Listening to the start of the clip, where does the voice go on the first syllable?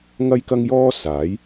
high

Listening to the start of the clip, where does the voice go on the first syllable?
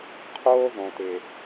high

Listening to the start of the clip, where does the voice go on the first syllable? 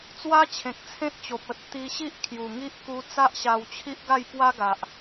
high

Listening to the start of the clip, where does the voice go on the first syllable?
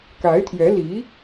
rising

